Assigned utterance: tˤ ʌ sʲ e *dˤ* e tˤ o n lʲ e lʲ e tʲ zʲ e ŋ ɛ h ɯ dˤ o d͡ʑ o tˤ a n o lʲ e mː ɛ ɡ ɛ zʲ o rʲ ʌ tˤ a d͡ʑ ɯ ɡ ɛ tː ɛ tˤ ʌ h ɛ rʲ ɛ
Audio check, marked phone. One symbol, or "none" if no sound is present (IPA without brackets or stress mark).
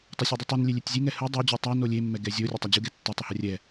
dˤ